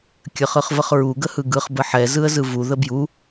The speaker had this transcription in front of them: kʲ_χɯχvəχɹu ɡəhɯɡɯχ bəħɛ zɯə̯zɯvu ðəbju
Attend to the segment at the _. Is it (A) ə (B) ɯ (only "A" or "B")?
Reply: A